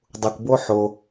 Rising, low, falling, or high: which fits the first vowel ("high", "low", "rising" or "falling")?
low